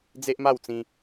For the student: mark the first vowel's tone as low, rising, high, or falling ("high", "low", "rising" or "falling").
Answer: high